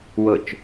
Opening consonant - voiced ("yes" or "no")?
yes